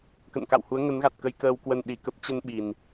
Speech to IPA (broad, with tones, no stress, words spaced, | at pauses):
kə̰˧˨nka̰˧˨whu˨˦ə̯ ŋə˨˦nɣa˨˩t̚kə˧j kəː˧wkwə˧n ɗi˨˩kə˦˥p̚ t͡ɕə˧n ɓi˨˩n